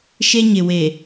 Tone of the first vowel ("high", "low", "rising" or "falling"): high